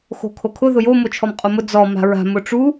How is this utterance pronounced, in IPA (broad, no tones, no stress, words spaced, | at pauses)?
xo̤kʰokʰʊ ðʊjo mot͡ʃʰɔmqʼomʊ d͡zɔ ma̤ɹa̤ mʊʈ͡ʂu